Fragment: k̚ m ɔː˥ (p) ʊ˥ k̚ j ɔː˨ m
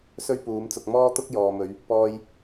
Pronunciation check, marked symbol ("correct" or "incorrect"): incorrect